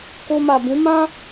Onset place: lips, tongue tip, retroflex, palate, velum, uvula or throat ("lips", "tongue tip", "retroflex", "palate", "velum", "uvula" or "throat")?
velum